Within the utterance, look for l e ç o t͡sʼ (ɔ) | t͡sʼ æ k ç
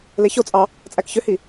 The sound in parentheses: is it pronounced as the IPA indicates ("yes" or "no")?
no